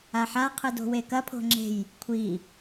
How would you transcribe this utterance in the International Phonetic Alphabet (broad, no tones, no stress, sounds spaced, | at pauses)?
a ħ a qʰ ɨ d o̤ w e k ɐ pʰ o̤ ŋ͡ǁ e̤ j | kʷʰ i